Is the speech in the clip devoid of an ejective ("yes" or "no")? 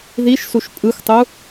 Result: no